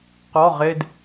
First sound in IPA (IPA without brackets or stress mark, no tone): q